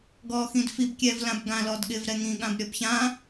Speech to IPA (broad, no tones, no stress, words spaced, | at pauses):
ɡɔːxĩdfib kʲɛːvlãbɡã lɔdɠɪv ɾɛŋĩ ɠãbɾʲɔbçã